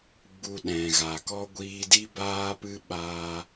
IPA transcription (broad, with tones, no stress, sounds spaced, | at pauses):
ɡ͡b u˨ ɗ ɛ̃˨ ɣ a˨ k ɔ˦ ɡʷ iː˧ d i˦ b aː˦ p ɨ˦ ɓ aː˧